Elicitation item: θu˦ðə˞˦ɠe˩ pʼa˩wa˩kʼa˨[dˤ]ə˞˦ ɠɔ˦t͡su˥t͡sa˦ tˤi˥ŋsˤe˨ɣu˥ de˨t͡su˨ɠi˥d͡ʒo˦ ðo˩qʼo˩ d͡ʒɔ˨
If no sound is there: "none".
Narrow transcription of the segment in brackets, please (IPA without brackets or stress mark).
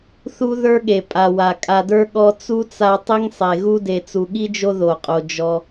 d